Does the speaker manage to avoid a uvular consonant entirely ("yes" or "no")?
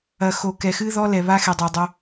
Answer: yes